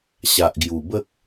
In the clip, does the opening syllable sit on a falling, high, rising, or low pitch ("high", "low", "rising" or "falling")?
low